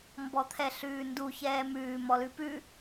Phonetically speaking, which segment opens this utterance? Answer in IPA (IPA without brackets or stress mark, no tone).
m